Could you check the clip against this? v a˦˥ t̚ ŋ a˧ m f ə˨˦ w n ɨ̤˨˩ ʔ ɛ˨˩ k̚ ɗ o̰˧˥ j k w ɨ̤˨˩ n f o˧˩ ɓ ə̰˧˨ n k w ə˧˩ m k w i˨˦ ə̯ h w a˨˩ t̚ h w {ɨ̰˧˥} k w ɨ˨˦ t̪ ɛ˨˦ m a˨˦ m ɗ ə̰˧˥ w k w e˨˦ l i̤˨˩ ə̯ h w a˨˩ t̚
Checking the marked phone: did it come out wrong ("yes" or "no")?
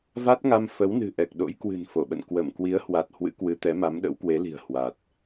no